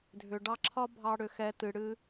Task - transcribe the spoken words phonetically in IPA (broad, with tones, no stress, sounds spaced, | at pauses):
dʱ ʏ˨ ɖ ɑ˧ ǁʰ ɒ˦ bʱ ɑ˧ ɽ ʏ˨ x ɛ˨˦ t ɨ˨ ɽ ɨ˦